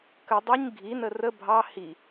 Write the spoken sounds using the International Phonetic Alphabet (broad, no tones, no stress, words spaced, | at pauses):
kə dˤuɲ ɡʱinə rə bʱɑ hi